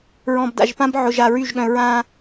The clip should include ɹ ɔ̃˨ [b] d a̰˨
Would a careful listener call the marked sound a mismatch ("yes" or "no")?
no